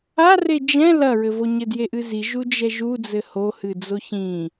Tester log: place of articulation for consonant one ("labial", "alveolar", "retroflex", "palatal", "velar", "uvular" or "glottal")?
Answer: alveolar